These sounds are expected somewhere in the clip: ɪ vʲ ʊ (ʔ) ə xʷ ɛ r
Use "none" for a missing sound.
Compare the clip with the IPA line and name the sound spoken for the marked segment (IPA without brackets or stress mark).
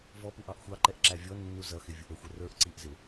ʔ